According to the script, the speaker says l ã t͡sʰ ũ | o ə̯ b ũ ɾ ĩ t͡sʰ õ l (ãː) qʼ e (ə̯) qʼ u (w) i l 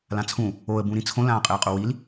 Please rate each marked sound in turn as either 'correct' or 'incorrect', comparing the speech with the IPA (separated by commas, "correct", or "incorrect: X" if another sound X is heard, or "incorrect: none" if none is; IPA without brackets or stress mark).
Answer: correct, correct, correct